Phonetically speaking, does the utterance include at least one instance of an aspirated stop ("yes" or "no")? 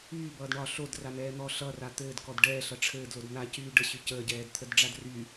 yes